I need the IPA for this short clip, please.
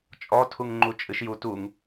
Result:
t͡ʃʼ ɔ tʰ u ŋ ŋ͡ǃ u t͡ʃʼ ɨ ʃ j u t u ŋ

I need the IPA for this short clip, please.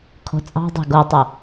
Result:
kʰ o̤ t͡sʼ ɑ̤ dˤ e̤ ɡ o tˤ o

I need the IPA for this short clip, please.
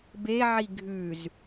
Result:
b e ʕ i ɡʱ ʉ z

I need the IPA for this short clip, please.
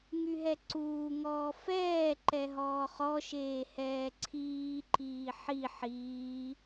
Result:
ŋ y ɦ ɛ ǀ uː ŋ ɔː f ɛː ǃ ɛ ɦ ɔː χ ɔ ʃ eː h ɛː ǀʰ iː ǃ iː ħ i ħ iː

